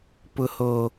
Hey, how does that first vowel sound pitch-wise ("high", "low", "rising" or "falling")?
low